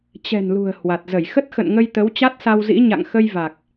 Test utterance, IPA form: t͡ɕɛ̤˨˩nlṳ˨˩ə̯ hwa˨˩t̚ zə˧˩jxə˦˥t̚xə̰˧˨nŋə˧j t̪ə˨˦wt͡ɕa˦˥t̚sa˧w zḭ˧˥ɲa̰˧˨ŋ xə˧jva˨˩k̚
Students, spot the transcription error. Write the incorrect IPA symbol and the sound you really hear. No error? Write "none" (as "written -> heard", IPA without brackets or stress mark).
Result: none